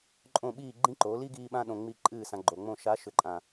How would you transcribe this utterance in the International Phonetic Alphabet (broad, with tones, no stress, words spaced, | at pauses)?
ǃʼõ˦˨ɓiː˦˨ ɡ͡ǃĩ˦ǃo˨˦li˦ ɡiː˧ɓã˧ɗõ˨ ŋ͡mi˧ ǃʼɨː˦˨sã˧ɡ͡ǃo˨ŋ͡mõ˦˨ ʃa˨˦ʃʏ˨ǃʼã˨